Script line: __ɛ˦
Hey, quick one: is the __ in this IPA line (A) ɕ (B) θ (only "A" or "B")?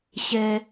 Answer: A